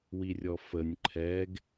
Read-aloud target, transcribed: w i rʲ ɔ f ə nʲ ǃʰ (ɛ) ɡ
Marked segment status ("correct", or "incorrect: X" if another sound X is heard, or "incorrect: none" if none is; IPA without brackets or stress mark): correct